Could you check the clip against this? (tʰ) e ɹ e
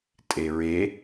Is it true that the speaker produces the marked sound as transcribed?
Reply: no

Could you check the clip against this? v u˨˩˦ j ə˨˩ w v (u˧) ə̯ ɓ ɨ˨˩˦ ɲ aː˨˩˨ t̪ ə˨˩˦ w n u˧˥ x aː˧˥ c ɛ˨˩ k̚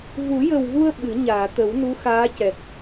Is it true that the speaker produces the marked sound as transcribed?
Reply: yes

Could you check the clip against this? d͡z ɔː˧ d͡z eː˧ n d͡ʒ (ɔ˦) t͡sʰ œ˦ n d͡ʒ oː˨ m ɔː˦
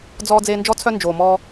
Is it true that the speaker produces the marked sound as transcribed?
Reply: yes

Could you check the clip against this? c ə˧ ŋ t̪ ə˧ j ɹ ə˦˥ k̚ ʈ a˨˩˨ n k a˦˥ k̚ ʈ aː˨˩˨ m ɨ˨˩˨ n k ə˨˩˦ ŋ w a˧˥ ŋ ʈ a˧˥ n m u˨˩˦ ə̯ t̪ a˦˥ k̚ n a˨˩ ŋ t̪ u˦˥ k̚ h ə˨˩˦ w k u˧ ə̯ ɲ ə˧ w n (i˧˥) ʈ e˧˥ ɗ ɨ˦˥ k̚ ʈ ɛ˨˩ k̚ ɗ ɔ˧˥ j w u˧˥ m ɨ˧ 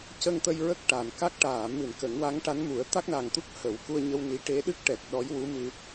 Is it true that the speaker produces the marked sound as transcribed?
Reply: yes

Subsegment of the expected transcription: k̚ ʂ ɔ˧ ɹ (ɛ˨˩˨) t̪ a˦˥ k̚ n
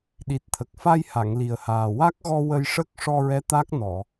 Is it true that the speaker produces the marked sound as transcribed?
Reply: no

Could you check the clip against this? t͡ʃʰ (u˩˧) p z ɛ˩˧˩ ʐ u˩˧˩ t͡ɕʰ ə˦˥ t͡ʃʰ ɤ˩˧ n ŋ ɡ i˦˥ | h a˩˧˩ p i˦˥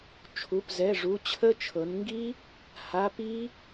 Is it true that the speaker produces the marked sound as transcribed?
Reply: no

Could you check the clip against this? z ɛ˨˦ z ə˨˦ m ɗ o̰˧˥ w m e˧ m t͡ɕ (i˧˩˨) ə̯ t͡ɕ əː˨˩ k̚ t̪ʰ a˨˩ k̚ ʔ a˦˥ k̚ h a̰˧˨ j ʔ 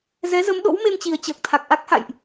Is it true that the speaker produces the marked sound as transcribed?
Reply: no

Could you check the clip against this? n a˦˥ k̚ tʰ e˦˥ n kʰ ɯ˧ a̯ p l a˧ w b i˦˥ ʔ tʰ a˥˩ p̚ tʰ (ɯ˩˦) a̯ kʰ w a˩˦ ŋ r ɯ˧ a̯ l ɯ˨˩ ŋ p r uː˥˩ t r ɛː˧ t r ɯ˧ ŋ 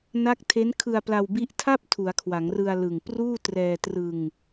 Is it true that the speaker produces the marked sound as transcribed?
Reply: no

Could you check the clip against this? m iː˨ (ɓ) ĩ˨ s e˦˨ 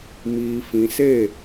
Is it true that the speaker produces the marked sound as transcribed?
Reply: no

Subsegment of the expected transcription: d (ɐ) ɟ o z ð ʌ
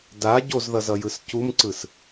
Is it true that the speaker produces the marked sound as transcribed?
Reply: no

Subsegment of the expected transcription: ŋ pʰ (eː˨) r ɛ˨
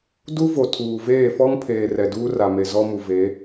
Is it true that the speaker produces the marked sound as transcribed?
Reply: yes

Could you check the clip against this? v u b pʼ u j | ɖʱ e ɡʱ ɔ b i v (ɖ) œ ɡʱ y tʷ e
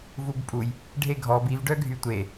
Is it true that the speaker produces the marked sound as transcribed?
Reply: yes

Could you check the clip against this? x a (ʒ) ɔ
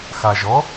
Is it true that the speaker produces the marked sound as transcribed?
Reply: yes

